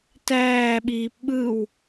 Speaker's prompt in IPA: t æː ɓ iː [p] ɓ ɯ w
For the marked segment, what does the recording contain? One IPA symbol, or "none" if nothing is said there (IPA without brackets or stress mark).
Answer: p